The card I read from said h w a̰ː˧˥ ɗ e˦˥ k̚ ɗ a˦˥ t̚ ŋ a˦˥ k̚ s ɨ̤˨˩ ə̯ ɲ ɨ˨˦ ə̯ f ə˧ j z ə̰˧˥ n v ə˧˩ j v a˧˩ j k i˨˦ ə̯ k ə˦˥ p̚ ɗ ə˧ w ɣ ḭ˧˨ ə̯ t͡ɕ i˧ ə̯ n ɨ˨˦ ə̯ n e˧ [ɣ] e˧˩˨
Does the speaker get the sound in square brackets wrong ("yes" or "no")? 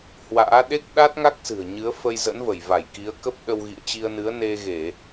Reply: no